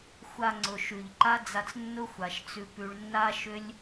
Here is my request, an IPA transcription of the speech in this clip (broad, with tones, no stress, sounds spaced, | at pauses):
xʷ a˧ ŋ͡ǀ ʊ˨ ʃ ʉ˨ ʎ ǃ a˦ d͡z a˧ t͡s nː ʊ˦ xʷ a˨ ʃ t͡s ʉ˧ p ʉ˧ ɭ nː a˦ ʃ ʏ˦ lʲ